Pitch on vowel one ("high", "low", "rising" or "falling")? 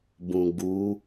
low